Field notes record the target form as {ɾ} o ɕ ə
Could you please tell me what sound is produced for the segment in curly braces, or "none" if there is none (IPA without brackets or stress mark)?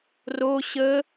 r